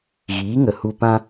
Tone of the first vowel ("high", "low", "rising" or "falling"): rising